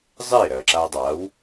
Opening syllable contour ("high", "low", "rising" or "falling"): falling